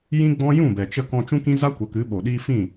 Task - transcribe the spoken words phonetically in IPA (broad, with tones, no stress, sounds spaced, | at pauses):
j ĩ˦ ɡ͡b ɔ̃˦ j ũ˦˨ b ɛ˨ t͡ʃ ə˧ k ɔ̃˧ t͡ʃ ũ˦ k ĩ˦ z a˦ kʷ ə˨˦ k ɨ˨˦ ɓ o˨ ɗ iː˦ f ĩ˦˨